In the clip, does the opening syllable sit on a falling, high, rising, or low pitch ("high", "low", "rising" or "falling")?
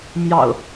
low